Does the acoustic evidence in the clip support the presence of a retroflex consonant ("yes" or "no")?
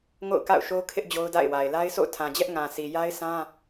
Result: no